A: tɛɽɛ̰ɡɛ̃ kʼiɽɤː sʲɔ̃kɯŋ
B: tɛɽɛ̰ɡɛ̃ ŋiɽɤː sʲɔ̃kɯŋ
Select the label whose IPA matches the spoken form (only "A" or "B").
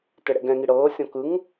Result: B